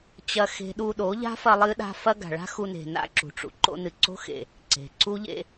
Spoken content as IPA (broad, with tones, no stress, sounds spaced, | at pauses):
t͡ɕ ɐ˧ x e̤˦ ɗ u˧ ɗ o˨˦ ʎ a̤˦ f ɐ˧ lˠ ɨ˧ ɗ a̤˧ f ɐ˦ ɡ a̤˨ ɭ a̤˦ x u˧ n e̤˨ n a̰˦ ǁ ṳ˨ ʈ͡ʂ ṵ˨ ǃ o̰˦ n ɨ˧ ǀ o̤˦ x ḛ˨ | ǀ e̤˨ ǀ u˦ ʎ ḛ˧